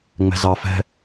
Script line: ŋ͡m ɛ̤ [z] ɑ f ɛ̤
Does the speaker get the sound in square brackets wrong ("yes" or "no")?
no